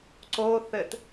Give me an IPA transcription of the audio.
ǀoθɘt

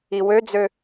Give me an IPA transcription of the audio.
iwød͡zø

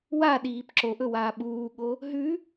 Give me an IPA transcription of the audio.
waɗiːp ǁoʔɵ waːɓuːɠo | ɦʉ

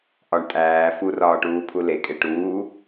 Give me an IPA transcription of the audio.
ʔɒɳ tʼæː furɒːʈuːpʰu lekʼe ʈuː

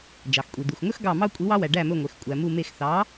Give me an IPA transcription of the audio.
d͡ʒɑ˩xkʷʼi˩ d̪u˩xŋɵ˦xɡɑ˧˩ mɑ˦ kʷʼi˨˥wɑ˦wæ˩ ɖæ˧˩mɵ˧˩ŋʷe˩x kʷʼæ˩mu˧˩me˧˩x θɑ˨˥

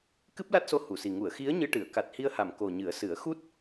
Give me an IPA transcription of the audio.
kɨ˦˥p̚la˦˥t̚so˧ hu˨˩˨si˨˩ ŋu˨˩˨ə̯xi˧˥ə̯ɲɨ˧ ʈɨ˨˩˨ə̯ ka˨˩t̚hi˧ə̯ha˨˩˨m ko˨˩ ɲɨ˨˩˦ə̯sɨ˨˩˦ə̯ xu˦˥t̚

